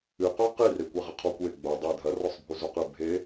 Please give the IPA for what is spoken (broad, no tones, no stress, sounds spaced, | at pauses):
ɨ q ɔ q i r e kʷ e ʁ ɘ qʰ ɔ kʷ e ɡ͡b o dˤ e dʱ ɐ r ɔ sˤ bʱ u z u q ɨ bʱ e